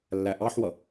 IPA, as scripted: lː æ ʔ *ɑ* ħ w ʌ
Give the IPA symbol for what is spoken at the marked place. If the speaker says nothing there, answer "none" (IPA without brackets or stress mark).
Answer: ɑ